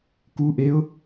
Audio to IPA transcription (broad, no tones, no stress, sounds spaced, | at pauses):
k u ʔ e ʊ̯